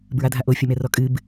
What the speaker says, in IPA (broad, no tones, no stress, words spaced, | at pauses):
bɹadʱaʔo fʲomɛrɔkʼɨb